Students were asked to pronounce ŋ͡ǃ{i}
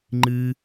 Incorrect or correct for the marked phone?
incorrect: ɨ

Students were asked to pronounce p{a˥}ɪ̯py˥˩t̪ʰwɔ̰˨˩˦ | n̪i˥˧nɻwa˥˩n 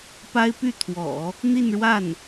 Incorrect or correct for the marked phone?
correct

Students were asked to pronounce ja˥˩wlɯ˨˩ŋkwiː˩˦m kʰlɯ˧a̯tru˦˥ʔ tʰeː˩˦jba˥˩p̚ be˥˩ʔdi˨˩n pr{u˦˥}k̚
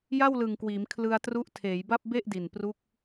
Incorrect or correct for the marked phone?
correct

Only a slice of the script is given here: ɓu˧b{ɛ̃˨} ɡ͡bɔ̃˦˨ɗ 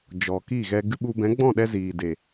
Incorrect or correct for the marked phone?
incorrect: ɛ̃˨˦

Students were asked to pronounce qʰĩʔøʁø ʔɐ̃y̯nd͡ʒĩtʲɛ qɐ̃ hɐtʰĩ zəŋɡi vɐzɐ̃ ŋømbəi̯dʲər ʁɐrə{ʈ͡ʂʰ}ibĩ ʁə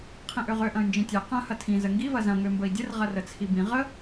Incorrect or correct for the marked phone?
incorrect: t͡sʰ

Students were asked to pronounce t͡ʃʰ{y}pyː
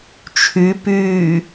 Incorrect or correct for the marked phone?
correct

